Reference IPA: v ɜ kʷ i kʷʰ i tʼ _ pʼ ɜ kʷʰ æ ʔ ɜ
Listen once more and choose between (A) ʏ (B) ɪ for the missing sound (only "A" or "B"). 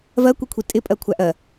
B